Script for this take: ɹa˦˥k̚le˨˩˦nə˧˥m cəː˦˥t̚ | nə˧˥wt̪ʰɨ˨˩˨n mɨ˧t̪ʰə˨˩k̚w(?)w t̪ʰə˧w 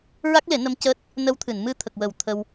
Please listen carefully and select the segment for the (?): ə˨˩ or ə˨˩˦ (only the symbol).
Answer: ə˨˩˦